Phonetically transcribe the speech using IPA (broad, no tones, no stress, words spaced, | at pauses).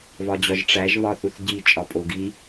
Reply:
βɒd͡ʑɒʒʈ͡ʂæʒ βɒθuθɟi t͡ʃʼɒpʼoɡi